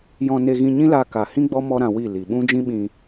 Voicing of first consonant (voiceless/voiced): voiced